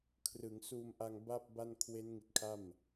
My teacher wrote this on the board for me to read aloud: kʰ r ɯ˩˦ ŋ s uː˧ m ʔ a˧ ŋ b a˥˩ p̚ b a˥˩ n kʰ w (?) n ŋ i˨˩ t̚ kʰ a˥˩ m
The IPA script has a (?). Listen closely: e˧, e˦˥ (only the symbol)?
e˦˥